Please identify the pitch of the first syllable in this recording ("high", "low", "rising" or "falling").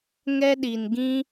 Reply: high